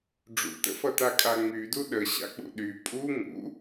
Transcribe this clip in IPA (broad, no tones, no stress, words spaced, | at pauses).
ɖ͡ʐṵtə̰fʌta kʼaŋ͡mydu ɗəɕa̰k͡pṵ ɗy pʼu ŋṵ